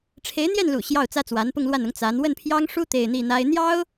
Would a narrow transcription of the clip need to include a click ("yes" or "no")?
no